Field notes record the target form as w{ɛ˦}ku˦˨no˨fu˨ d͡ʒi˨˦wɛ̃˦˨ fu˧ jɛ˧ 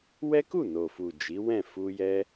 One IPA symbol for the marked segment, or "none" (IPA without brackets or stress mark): ɛ˦